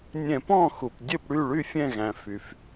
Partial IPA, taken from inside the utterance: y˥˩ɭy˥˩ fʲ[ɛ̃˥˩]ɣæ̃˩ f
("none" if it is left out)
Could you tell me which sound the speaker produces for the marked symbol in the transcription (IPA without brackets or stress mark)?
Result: ɛ̃˥˩